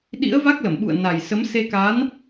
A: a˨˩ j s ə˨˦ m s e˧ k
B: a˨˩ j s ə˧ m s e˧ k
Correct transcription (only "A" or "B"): A